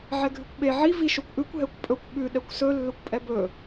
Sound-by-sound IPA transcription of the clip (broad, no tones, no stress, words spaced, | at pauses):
ʕɛɡʱʉkʷɓe ʕi viʃokʷʔʉkʷ ɦɛkʷpʼɵkʷ ɓʉ ɗɛkʷsɵ lːɵkʷpʼɛbɵ